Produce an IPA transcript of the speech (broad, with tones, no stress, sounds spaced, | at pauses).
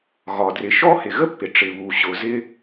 ɣ ɒ˩ d r ɪ˩ ʃ ɔ˥ h ɪ˩ ɣ ə˥ pː ɪ˩ ʈ͡ʂ ɪ˩ β u˩ ɕ ʊ˩ z ɪ˥